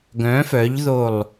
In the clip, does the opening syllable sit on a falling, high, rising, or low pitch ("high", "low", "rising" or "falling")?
rising